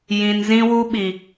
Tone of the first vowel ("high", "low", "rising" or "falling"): low